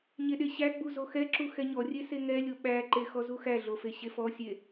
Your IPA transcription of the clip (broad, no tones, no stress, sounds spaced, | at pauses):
ɲ e ɗ e ɕ æ ɡ͡b u z o x ɛ ǁ u x ɛ ɲ ɔ rʲ e s e ŋ ɛ lʲ o ɓ æ ǃ e x ɔ z u x æ ɮ o f e ɕ e f ɔ sʲ e